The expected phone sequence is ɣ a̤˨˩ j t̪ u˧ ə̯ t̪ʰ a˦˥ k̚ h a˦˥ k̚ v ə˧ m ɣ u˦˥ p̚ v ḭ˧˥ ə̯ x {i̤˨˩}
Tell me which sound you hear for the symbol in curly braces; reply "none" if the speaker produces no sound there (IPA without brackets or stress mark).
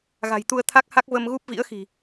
i̤˨˩